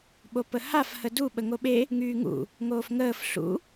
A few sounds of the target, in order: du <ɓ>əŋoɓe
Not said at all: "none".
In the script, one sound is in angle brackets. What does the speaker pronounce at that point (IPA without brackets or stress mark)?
ɓ